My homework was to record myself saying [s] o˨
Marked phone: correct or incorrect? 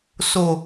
correct